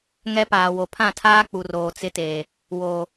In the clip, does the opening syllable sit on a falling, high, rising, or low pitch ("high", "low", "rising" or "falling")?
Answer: high